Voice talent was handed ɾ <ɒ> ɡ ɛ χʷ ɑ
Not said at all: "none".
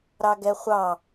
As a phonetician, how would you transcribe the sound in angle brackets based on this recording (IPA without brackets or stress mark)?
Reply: ɑ